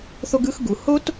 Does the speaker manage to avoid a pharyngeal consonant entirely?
yes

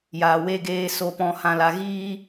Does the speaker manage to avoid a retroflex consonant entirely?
yes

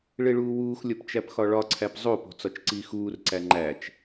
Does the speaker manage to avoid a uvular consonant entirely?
yes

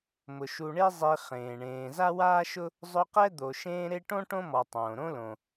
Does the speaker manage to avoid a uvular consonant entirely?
no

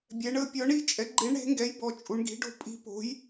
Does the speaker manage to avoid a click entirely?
no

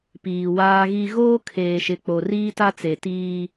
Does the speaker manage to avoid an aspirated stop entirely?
no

